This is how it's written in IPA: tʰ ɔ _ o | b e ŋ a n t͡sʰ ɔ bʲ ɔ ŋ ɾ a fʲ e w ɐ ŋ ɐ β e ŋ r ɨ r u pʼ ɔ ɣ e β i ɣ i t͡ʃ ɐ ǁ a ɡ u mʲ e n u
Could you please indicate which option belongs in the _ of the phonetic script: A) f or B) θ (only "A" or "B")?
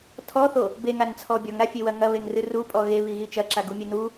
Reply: B